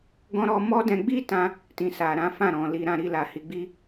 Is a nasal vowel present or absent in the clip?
present